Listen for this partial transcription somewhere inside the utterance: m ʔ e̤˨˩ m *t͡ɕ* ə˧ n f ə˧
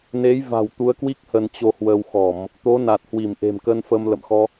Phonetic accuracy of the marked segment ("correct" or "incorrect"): incorrect